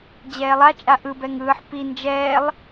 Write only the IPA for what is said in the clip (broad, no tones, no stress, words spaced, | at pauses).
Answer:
d͡ʑɛːlˠat͡ʃʼa ʔɯbɛŋ ɯːħ pi nd͡ʒɛːlˠ